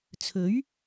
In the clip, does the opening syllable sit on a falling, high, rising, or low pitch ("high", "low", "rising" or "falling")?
rising